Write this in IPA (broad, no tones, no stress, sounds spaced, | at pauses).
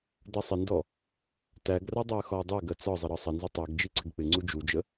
d ʌ sˤ ɪ n d ɔ | t æ ɡ r ʌ dˤ æ ə̯ x ɒ ə̯ dˤ ɛ ɡ ɜ t͡s ɒ zˤ ə ɾ ɒ sˤ ə n z ʊ tˤ ɛ ɡ d͡ʒ i ǀ ɪ ɡ k͡p ɪ ŋ͡ǀ u d͡ʒ u d͡ʒ ə